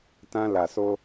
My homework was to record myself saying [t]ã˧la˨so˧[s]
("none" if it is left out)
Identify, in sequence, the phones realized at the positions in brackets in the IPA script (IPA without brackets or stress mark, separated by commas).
t, none